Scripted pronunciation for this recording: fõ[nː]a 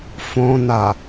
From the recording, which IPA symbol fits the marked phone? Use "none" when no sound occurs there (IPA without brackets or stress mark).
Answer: n